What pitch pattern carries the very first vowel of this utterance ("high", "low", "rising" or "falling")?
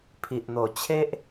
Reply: low